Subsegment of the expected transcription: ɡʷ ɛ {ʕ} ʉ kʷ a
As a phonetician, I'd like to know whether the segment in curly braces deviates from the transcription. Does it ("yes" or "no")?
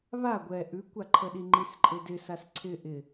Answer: yes